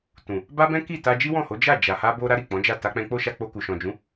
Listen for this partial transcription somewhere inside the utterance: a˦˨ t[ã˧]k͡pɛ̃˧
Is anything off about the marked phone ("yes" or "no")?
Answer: yes